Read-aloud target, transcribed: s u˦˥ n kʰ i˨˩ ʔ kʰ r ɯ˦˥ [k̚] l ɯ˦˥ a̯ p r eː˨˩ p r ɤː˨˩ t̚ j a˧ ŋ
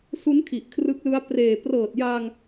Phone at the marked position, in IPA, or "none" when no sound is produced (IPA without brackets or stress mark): k̚